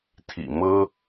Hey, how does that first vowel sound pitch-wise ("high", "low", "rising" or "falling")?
low